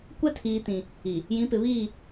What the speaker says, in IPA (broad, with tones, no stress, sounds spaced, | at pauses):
kʷ ɛ˦ tʰ iː˨ t ĩ˨ | i˨ | j ĩ˨˦ p ɪ˨ β iː˦˨